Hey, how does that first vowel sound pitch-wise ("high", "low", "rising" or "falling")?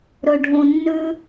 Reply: low